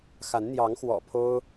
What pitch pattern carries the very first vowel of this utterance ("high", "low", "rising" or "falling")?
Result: rising